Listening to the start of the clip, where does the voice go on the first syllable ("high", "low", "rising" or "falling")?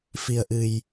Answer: low